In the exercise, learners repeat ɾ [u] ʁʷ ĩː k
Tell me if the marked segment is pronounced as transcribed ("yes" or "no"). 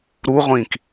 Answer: yes